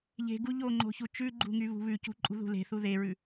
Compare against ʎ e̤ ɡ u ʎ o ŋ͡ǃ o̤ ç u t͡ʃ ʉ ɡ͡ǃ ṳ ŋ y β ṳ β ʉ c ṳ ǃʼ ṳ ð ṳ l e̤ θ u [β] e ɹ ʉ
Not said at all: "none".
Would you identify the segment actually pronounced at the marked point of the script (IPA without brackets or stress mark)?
ð